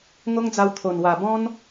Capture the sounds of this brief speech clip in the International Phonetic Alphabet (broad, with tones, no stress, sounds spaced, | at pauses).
ŋ o˦ ŋ d͡z a˧ w t̪ʰ o˨˩ n w a˨˩ b ɔ̃˦ n